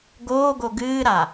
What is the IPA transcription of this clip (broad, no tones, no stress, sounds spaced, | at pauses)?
ɡ oː ɡ o ɡ ɨː ɾ a